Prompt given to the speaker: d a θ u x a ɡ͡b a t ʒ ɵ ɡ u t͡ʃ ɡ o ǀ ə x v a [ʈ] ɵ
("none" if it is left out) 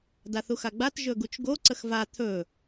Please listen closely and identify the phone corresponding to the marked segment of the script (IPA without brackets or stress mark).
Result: t̪ʰ